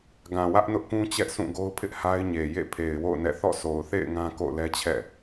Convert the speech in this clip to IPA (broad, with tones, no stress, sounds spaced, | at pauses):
ɡ ã˨ w ä˦ ʔ n ʊ˦ ʔ k ũ˦ t͡ɕ ɛ˦ ʔ sʰ ũ˦˨ ɡ o˦ ʊ̯ pʰ ɪ˦ ʔ h a˦ ɪ̯ ɲ e˨ j ḛ˦˨ pʰ e˨ ɪ̯ w o̰˦˨ ʊ̯ n ɛ̰˦˨ θ ɔ̰˦˨ s o˨ ʊ̯ θ ḛ˦˨ ɪ̯ ŋ ã˦ k o̰˦˨ ʊ̯ l ɛ˦ t͡ɕʰ ɛ̰˦˨